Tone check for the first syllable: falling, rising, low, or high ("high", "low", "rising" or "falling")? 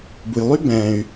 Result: low